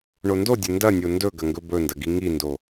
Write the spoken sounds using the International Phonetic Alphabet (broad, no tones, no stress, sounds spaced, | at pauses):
ɳ o n d o dʲ ɵ n d ɐ nʲ o n d ɵ ɡ ɐ ŋ ɡ ɵ b ɵ n d ɐ ɡ i ŋ i n d o